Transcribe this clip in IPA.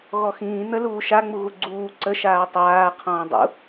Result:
ɣɔxĩː n̪ə luːʃa ŋ͡muɣuɡ͡ǀuː ǀə ʃaːtˤaː qʰɔ̃ːdˤṵ

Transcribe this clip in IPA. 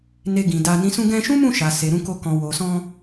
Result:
ne˧ɡĩ˨ da˧nĩ˦ sũ˧ɡɛ̃˧ʃũ˦ mũ˦˨ ʃa˨ se˨ɾũ˧ko˧ kɔ̃˨wo˨sɔ̃˧

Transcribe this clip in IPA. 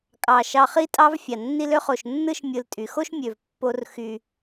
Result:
kʼɑ˩ ʃɑ˨χi˦tʼɑ˦vfʲɑ˩ nːi˦lø˥χo˨ʃ nːɯ˥ʃ mʲɯ˨ltʼy˩xo˥ʃ mʲø˨vpːo˦r xy˨

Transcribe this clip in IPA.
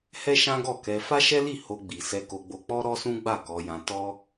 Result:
hɛ˦ʃã˦ɡɔ˦˨kɛ˧ fa˦ʃɛ˦li˦˨ ho˧ɡ͡bi˨ sɛ˧ko˧ɡ͡bo˧ k͡pɔ˦ɾɔ˦sũ˦ ɡ͡ba˦˨kɔ˧jã˧ tɔ˦

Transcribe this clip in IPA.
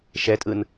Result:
ʃɛtʼɯn

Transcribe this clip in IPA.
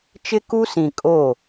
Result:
t͡ʃɪ˦ku˦sĩ˨ kʼo˦˨

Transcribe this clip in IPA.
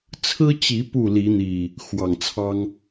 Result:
t͡sʰɹ̩˦t͡ɕi˨˦ pu˥˨li˨˦n̪i˨˩ | xwɑ˨˩ŋt͡sʰɑ˦ŋ

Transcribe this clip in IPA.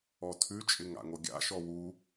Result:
ɔtʰʉt͡ʃʼɪŋ a̰ŋoɡʲa̰ʃɔ wu

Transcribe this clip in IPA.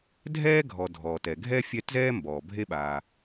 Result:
dʱɛː˥ɡʱɔ˨ dʱɔː˩tɛ˩ ɡʱɛ˥ fʲɛ˦tzɛː˥ mbɔː˩bʱe˦ɓaː˨

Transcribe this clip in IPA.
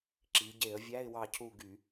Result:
ǁi˩˧ɟe˧˩˧ə̯vʲæ˧˥˧ɪ̯ wɑ˦˨cʰu˦˨ɡy˧˩˧

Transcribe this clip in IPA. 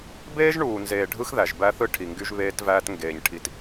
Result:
beː˦ʒ ɳuː˨nzeː˨ ɖʱɯ˦xðæ˨ʒbæ˦θɯ˦ ʈʰi˨ŋɡy˦ʒ βeː˦tvæː˦t ŋɡeː˨ɲʈʰi˨t

